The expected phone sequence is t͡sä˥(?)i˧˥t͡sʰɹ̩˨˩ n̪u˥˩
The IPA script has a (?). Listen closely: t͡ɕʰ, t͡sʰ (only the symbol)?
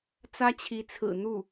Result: t͡ɕʰ